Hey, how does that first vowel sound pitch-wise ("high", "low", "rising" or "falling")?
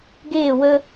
falling